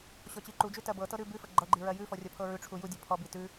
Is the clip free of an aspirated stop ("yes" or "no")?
no